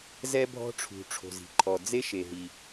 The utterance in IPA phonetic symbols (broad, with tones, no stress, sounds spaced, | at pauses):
z ɛ˥ bʱ ɔ̤˥ ʈ͡ʂʰ ṳ˩ ʈ͡ʂʰ o̤˩ z i̤˩ ǃʰ ɔ˩ d͡z e˥ ʃ e˩ ɦ i˩